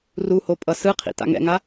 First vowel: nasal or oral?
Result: oral